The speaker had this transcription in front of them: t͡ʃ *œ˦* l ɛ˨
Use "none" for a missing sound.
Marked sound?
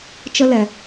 ə˦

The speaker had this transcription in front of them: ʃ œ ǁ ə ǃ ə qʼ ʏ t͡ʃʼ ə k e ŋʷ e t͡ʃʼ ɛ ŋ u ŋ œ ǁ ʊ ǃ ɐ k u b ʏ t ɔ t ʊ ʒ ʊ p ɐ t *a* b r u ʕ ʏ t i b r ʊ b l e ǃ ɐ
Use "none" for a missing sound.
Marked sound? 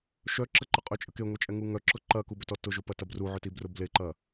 ɐ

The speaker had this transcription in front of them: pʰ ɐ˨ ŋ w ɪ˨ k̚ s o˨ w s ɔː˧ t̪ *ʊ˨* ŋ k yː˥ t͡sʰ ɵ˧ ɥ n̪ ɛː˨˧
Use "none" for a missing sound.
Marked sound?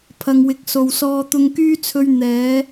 ʊ˧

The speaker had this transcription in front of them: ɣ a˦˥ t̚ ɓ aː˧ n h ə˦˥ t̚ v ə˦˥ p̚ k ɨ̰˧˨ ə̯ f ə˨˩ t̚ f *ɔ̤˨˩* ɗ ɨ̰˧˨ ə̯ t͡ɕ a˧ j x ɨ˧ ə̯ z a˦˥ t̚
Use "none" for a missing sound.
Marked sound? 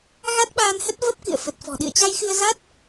ɔ̤˨˩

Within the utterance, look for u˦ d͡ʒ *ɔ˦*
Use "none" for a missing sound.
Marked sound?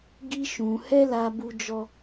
ɔ˦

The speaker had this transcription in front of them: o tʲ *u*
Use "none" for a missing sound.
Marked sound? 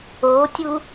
u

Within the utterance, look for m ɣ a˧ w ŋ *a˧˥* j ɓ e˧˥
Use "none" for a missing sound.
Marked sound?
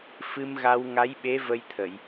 a˧˥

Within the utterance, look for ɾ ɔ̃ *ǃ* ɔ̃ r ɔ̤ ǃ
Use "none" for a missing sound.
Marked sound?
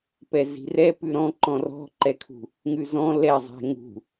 ǃ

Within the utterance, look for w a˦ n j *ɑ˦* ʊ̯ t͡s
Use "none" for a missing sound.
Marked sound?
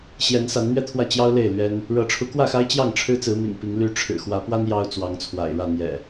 ɑ˦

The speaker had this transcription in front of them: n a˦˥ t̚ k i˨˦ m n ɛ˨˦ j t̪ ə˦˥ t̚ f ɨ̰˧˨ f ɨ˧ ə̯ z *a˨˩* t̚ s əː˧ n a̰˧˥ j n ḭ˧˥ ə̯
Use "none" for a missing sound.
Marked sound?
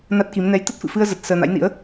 ə˨˩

